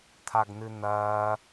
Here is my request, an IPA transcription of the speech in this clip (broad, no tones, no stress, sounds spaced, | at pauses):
t̪ʰ a ɡ n̪ ɨ n̪ ɐː